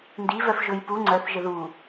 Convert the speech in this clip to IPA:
n d i v œ f ʒ ɵ j p u ŋ͡ǀ œ θ ʒ ə ð u

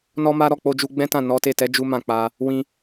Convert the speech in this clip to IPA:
n ɔ˦ m a˦ ɾ ɔ˦˨ k͡p o˧ d͡ʒ u˧ ɡ͡b ɛ̃˦ t ã˦˨ n ɔ˨˦ t e˦˨ t ɛ˨˦ d͡ʒ u˦ m ã˦˨ k͡p a˧ | w ĩ˧

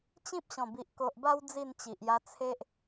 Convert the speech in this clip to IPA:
t͡ɕ ĩ˦ p̚ ɕ ɔ̃˨˩ b i˨ ʔ k o˨ ʔ b a˧ w d͡z i˥˧ n t͡ɕ i˨ ʔ j a˧ t͡sʰ e˦ ʔ

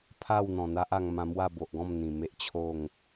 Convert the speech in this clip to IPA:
pʰ a˥˧ w n̪ ɔ̃˨˩ n̪ a˦ ʔ a˧ ŋ m ã˧ m w a˥˧ b o˨ ʔ ɡ ɔ̃˥˧ m n̪ ĩ˨˩ m e˦ ʔ t͡ɕʰ o˥˧ ŋ

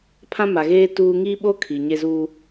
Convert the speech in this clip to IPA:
pʰ ã˦ m a˨ ɣ eː˦ t uː˦ ŋ iː˦ ɓ o˦ kʰ iː˨ ɲ e˦ z u˦

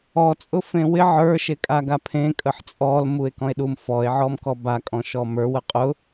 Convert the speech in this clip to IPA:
ɔ t͡sʼ ʊ f ẽ w ɪ ʕ ə˞ ʃ e kʼ a ɡ a pʰ ẽ kʼ ə ħ t͡sʼ ɔ l m u e̯ k ɔ̃ e̯ ɗ u m f ɔ e̯ ʕ ɔ m k ɔ b a kʼ ɔ̃ ʃ ɔ m ə˞ w ə qʼ ʊ

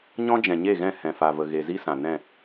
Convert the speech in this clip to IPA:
ɲ ɔ̃˦ d͡ʒ ɛ̃˨ ɲ e˦˨ ɣ ɛ̃˦˨ h ɛ̃˨ f a˨ v ə˨ ɣ e˨ z i˦ s ã˨ n ɛ̃˦˨

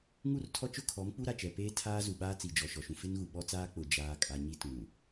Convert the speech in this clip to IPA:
ŋ u˦˨ r tʰ ɔ˦ t͡ʃ ʊ˦˨ kʰ ɔ˨˦ m k͡p u˦ ɾ a˨ t͡ʃ ɛ˨ p eː˦ tʰ aː˦ z u˨ ɓ aː˦ t͡s i˨ d͡ʒ ɔ˨ ʃ ɔ˨ ʃ ũ˨ f ɪ˦ n ɣ u˨ ɓ ɔ˦ t͡s aː˦ k͡p ʊ˨ d͡ʒ aː˨ kʼ a˨ ɲ i˦ t ũ˨

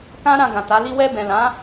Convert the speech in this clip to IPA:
k ã˦ ɾ ã˧ ɡ ã˨ t a˨˦ l i˦ w ɛ˧ b ɛ̃˨ l ã˨˦

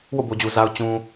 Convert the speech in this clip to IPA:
w o̰˦˨ b o˨ d͡ʑ u˨ z a˨ ʊ̯ t͡ɕ ũ˨

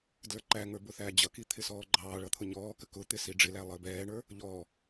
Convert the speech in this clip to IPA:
d l ə˞ ǃ æ ŋ ə˞ b ʊ θ æ d͡ʑ ʌ k i t̪ʰ ɪ s ɔː ɡ͡ǃ ɑː ɭ ʌ t̪ʰ ʊ ɲ ɔː k ə k ʊ t̪ ɪ s i ɖ͡ʐ ɪ l æ lˠ əː b ɛː ɳ ə˞ | ʎ ɔ

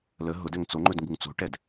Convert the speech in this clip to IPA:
l ə ɦ ʊ d ɛ ŋ t͡s o ŋ͡ǃ ɵ d ŋ ɡ u ŋ t͡s o̤ ʈ ɛ d

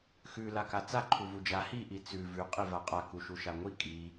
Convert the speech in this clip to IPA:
x ʉ l a k a t͡s a ǃʰ u v u d͡ʒ a h i ʔ i t͡s ʉ v ʉ qʼ i v a qʼ a k u ʃ u ʃ a ŋʷ i kʼ i

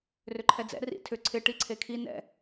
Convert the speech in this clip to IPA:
r ʏ ǃʰ ɛ d͡z ɛ̰ r ḭ tʰ ʏ ǀʰ ɪ ʈ i ǀʰ e kʰ i n ɛ̰

